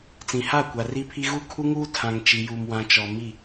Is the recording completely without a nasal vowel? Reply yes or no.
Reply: no